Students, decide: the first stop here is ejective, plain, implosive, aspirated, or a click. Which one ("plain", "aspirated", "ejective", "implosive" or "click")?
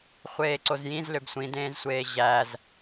click